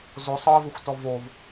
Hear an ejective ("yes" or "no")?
no